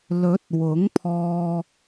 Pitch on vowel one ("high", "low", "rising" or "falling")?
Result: rising